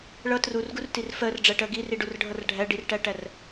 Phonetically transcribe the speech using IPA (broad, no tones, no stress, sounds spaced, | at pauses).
ɭ ʌ t r u r ɡ u r t i r f ɜ r ɖ͡ʐ æ ʈ ɜ ɡ i r i ɖ u r ɖʱ ʌ r ɖʱ æ ɖ i r ʈ æ ʈ æ r